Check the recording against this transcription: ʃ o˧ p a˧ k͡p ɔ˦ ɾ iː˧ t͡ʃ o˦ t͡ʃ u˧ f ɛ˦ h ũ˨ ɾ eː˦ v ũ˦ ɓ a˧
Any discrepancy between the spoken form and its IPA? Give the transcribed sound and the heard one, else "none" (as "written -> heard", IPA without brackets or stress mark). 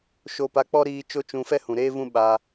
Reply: u˧ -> ũ˧